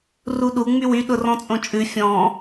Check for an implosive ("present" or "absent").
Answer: present